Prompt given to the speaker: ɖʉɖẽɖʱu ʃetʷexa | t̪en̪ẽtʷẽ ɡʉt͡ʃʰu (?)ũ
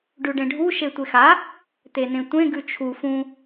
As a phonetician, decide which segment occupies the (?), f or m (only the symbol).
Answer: f